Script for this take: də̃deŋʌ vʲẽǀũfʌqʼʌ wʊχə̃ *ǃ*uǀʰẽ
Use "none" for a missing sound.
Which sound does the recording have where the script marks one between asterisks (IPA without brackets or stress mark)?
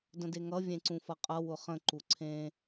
ǃ